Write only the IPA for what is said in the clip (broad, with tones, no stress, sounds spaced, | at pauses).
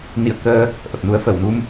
n ḭ˧˨ ə̯ k əː˧ | ʔ ə˨˩ p̚ n u˨˦ ə̯ f ə˧˩ w n u˧ m